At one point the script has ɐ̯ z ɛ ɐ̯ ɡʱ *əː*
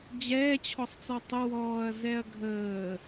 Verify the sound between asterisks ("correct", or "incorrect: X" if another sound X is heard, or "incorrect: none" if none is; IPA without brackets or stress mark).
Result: correct